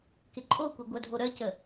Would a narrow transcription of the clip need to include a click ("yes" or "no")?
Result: yes